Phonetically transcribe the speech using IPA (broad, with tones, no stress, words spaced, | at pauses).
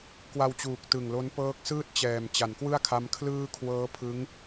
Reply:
kwa˧wt͡ɕuː˨˩k̚tɯ˨˩ŋlo˦˥n pɤː˦˥k̚sɯː˥˩t̚t͡ɕɛː˨˩m t͡ɕa˩˦nkwɯ˥˩a̯kʰa˦˥m kʰlɯː˥˩ kʰwɤː˦˥pʰɯ˦˥ŋ